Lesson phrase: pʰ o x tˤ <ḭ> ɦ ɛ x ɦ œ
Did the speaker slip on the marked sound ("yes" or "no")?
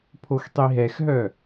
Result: yes